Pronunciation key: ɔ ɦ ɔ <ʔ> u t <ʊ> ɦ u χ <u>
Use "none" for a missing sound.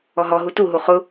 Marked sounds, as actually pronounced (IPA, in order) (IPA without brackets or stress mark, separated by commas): ɦ, u, ʊ